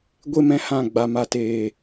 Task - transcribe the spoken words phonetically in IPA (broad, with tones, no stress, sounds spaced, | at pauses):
ɡʷ e˦ m ɛ̃˧ h ã˦˨ ɡ͡b a˨ m a˨ t eː˨